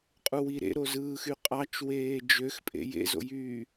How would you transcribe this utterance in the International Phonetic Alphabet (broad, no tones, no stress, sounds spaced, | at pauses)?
qʼ u w i ɾ ḛ ɾ o z ɯː x y qʼ ɑ t͡ʃ w eː d͡ʒ ø x pʼ ḛ j ḛ z o̰ j yː